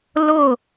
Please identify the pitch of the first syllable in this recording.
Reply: falling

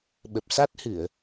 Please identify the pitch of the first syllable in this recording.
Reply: low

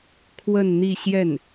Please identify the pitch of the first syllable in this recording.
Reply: falling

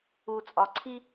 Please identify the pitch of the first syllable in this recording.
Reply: low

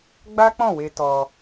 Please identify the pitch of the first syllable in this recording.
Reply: high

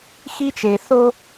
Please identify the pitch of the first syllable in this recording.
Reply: high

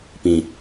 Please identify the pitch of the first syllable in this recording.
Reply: low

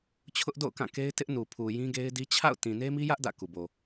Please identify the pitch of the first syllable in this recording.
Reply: high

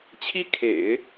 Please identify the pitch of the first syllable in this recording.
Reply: high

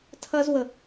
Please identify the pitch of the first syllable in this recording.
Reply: high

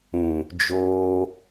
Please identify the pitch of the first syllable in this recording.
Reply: low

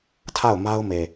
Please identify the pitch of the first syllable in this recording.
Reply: falling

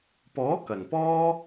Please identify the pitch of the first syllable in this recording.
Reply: rising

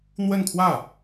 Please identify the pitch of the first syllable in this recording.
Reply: falling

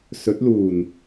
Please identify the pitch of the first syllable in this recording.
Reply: rising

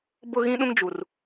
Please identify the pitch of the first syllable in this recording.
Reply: high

